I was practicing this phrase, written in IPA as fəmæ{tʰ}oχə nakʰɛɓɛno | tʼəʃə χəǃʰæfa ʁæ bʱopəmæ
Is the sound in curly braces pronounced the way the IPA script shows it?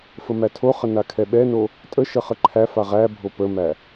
yes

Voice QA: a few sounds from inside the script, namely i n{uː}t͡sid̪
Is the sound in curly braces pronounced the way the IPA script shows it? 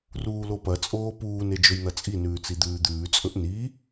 no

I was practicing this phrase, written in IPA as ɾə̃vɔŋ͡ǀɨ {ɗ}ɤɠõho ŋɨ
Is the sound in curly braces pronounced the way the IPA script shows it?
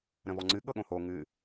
no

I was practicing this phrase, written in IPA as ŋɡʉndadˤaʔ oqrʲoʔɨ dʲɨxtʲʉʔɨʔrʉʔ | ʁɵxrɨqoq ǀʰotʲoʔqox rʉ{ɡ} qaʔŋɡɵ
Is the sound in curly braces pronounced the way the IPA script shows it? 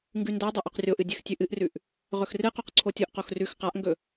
no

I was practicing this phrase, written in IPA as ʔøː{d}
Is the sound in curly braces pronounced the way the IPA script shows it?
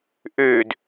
yes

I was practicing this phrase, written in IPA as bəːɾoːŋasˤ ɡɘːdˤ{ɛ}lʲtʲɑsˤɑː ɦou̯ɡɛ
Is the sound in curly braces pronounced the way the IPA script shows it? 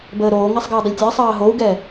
no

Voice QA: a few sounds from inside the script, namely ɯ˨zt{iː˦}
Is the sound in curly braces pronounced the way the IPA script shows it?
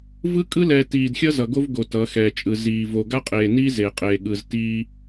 yes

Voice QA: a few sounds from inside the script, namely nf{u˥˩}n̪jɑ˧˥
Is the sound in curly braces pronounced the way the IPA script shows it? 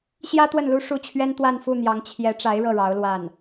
yes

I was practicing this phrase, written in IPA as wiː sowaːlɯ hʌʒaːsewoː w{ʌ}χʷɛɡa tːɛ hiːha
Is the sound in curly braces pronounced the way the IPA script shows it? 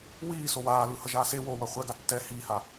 yes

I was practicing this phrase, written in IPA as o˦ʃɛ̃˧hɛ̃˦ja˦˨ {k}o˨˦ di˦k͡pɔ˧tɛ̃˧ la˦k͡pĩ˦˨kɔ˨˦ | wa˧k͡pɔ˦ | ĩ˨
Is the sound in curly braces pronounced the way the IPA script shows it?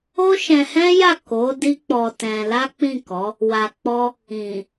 yes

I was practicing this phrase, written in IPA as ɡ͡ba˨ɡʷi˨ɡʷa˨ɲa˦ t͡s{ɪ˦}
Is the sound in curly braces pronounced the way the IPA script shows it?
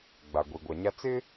yes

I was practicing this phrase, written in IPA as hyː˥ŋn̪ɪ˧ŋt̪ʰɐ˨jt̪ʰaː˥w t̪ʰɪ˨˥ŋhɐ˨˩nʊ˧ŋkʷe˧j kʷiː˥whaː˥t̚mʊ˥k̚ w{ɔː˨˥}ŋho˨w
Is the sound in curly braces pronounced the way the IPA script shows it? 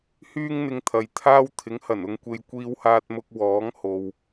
yes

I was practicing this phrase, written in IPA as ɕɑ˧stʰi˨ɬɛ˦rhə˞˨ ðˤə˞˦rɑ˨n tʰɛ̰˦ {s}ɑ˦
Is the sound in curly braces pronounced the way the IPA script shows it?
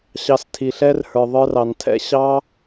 no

